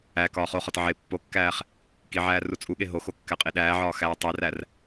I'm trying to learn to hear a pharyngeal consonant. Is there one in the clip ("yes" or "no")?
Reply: yes